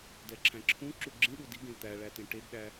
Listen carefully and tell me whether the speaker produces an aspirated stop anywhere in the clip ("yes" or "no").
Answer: yes